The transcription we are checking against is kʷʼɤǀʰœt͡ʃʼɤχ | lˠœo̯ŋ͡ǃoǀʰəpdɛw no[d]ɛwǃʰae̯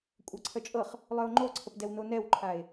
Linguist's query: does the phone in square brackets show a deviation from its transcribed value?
yes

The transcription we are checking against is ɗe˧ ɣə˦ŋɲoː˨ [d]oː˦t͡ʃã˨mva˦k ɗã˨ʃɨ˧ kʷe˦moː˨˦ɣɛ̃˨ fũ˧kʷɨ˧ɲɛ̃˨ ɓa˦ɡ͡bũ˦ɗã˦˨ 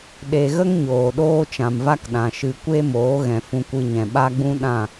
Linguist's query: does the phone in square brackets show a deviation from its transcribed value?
yes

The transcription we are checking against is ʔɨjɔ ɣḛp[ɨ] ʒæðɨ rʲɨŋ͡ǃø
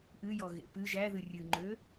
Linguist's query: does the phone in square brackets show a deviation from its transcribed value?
no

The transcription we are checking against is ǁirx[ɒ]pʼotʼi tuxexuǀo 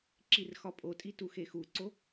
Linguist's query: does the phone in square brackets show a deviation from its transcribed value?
no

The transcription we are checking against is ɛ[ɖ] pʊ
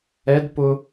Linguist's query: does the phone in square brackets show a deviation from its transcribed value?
yes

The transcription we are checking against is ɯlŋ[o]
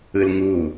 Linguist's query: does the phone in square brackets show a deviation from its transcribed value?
yes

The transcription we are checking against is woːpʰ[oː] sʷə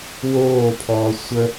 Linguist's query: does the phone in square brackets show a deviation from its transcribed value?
yes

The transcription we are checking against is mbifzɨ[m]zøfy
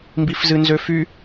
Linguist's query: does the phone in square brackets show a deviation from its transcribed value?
yes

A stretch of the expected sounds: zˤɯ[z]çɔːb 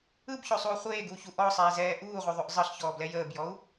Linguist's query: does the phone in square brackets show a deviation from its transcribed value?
yes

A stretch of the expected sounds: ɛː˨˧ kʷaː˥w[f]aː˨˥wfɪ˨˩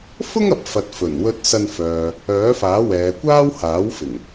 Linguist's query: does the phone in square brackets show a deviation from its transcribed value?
yes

